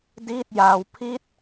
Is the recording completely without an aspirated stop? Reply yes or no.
no